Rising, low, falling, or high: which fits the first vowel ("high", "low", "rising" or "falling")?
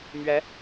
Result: rising